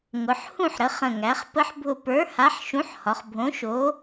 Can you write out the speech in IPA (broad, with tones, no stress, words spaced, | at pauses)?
ŋʊ˩˧ħ hũ˦˨ħɾə˩˧ χə̃˨˩ŋæ˩˧χ pə˦˥ħbʱʊ˦˨ pə˞˨˥ha˨˥ħ ʃũ˨˥ħhɒ˩˧χ bʱõ˨˥ʃo˨˥